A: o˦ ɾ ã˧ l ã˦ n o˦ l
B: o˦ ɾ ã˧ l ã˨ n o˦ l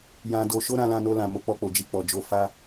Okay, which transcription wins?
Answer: A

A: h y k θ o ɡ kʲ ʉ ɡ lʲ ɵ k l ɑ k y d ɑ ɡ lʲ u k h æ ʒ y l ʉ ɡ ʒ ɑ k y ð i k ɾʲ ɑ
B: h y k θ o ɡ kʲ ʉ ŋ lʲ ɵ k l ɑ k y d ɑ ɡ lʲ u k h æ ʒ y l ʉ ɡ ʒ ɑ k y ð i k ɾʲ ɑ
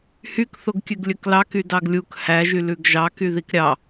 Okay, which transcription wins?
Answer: A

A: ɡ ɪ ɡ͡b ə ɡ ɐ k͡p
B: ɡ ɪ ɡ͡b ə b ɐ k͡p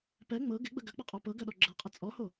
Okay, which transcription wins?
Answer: A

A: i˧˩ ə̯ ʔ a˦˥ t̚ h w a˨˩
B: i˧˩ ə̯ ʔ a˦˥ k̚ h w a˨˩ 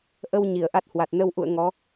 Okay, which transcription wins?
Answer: A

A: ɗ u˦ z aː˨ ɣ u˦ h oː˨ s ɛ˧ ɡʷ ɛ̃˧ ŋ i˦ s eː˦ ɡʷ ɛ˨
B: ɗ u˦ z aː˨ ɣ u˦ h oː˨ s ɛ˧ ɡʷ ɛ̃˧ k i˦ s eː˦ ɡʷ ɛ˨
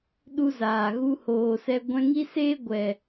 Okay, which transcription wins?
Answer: A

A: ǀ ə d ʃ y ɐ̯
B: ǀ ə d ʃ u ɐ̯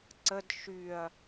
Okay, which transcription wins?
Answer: A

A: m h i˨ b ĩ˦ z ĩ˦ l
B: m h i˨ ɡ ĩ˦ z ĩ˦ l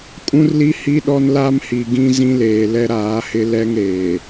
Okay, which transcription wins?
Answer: B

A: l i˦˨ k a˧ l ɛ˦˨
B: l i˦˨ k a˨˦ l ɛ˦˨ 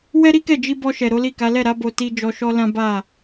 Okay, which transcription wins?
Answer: B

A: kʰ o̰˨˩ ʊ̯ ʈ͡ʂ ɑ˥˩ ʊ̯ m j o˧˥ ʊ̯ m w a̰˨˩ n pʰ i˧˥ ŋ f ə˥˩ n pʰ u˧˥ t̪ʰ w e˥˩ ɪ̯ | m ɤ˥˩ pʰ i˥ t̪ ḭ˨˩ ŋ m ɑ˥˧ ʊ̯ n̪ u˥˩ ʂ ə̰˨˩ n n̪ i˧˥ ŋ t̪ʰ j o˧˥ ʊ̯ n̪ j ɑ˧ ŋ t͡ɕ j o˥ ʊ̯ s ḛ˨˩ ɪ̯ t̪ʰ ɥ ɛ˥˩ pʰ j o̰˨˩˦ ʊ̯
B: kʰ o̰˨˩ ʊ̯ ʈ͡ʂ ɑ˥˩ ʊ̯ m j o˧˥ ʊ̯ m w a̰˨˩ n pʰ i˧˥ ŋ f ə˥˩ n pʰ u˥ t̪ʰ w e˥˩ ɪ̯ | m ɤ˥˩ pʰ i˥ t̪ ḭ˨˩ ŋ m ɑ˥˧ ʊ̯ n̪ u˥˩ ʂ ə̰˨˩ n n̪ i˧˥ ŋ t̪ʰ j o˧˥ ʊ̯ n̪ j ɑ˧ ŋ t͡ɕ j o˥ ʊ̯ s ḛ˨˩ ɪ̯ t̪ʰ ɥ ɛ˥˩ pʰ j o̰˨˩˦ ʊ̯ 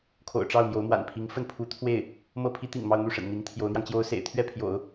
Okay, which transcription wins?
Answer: A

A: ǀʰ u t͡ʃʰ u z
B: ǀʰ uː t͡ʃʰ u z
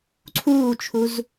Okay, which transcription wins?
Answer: B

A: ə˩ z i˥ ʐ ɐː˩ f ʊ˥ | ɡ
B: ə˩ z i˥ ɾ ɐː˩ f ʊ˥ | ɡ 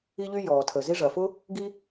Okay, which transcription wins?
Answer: A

